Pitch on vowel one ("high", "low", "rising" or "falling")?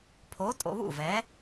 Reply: rising